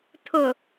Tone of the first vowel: low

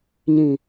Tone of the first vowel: low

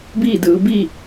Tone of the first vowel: falling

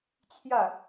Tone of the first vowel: falling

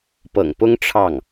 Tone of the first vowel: low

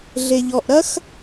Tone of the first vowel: low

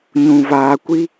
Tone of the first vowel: low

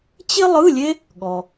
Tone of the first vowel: high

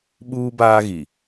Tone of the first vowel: high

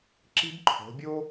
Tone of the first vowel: high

